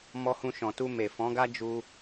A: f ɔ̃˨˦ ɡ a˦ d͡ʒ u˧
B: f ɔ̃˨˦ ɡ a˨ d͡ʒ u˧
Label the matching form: A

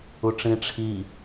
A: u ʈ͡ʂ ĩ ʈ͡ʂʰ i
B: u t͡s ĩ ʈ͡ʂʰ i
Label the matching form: A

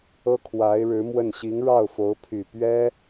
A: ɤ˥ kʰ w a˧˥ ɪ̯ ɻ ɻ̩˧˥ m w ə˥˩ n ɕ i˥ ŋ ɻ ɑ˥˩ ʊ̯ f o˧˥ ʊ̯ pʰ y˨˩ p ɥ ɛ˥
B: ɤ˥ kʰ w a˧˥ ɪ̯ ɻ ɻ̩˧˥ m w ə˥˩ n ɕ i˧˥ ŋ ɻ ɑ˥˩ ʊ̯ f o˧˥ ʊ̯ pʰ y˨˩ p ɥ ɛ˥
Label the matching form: B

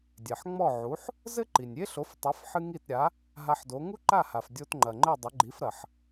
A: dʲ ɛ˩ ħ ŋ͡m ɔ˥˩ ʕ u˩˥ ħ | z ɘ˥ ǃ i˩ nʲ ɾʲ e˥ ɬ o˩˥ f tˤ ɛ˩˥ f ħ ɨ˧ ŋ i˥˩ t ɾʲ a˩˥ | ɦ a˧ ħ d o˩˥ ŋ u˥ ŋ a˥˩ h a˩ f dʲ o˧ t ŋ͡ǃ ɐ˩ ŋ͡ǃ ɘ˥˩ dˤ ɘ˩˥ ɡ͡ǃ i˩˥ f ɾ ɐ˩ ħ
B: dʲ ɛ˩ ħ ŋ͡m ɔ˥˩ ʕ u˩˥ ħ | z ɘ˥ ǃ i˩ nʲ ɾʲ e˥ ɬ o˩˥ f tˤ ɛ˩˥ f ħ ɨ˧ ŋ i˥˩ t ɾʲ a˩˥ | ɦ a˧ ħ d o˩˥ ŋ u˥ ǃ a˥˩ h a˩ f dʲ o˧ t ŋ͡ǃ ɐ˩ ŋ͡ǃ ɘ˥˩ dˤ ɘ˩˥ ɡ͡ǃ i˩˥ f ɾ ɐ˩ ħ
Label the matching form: B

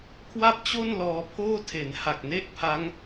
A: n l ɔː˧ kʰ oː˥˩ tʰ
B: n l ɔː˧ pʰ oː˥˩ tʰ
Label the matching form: B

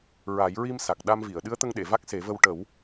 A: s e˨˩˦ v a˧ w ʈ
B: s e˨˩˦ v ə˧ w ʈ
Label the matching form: B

